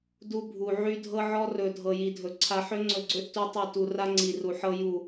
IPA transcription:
du˦bʱu˨ ʕy˦dʱɤ˦ʕɔ˦rɵ˨ dʱɤ˨ji˨dʱɵ˨ ǀʰa˨ħø˦ŋ͡ǀɵ˨ɡ͡ǀø˦ʔ tu˦tˤi˦˨ tu˨ra˦ ŋ͡ǀi˨ru˨ħɤ˦ ju˦˨

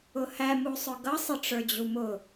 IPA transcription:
ʊhæ musˤʊɡʌ sˤəʈ͡ʂə˞d͡ʑumʊ

